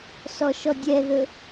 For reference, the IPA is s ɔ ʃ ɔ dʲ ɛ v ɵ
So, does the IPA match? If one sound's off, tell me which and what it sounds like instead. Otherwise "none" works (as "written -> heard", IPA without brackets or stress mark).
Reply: v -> ð